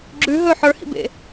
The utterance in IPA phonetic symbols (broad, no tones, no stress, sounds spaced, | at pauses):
ɡ͡ǁ ʉ ɦ ɵ ħ ə˞ h ḭ b ḛ